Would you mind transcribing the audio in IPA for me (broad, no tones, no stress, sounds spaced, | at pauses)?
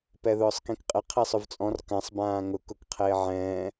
p ɛ ð ʊː sˤ k ĩ k qʼ ɪ qʰ i sˤ ʊ v t͡sʼ ɔ̃ r k ã sˤ b ãː ŋ ʊ k ʊ k qʰ eː ʕ ɛ̃ː